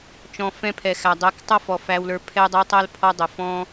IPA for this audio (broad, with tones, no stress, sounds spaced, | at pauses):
t͡ʃ ɔ̃˨ f ɛ̃˦ pʰ ɛ˨ x æ˨ dˤ ɛ˨˦ k tˤ ʌ˦ f ɔ˨ f æ˧ w l ə˞˧ pʰ ɛ˧ dˤ ʌ˧ w tˤ æ˦ l pʰ ɔ˦ dˤ ə˨ f ɔ̃˦